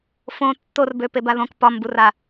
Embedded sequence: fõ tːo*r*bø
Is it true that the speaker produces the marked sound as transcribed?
yes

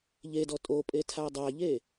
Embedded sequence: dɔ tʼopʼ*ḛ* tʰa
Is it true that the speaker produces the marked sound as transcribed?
no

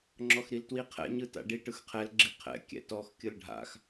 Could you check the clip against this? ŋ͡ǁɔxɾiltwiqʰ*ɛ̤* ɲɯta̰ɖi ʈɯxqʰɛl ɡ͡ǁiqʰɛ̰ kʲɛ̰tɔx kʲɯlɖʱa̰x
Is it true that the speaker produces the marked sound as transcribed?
no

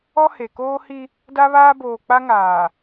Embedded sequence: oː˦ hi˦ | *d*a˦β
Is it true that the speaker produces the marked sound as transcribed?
yes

